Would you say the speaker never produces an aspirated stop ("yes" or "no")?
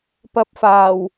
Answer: yes